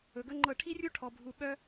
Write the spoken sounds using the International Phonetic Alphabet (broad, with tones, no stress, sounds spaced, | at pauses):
ɵ˨ ɡ ɵ˦ ŋ͡ǃ ɤ˦˨ ʈʰ i˦ rʲ u˦ ʈʰ ɔ˨ bʱ u˨ ɓ œ˦